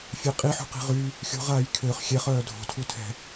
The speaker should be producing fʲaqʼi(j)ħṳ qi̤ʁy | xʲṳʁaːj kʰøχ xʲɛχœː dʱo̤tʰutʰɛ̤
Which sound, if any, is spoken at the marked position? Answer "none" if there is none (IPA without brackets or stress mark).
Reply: none